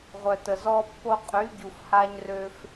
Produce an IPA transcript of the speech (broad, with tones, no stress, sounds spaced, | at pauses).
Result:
ʁʷ œ˩ t ə˩ z ɔ˧ pː o˧ qʼ y˩˥ ɟ u˩ f h a˧ ɲ r ø˧ f